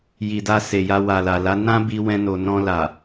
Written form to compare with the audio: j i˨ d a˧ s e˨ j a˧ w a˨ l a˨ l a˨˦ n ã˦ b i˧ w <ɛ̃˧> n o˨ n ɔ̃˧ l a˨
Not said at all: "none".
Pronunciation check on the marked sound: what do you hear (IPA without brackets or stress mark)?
ɛ̃˧